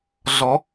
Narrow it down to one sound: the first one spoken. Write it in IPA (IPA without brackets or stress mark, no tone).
ɮ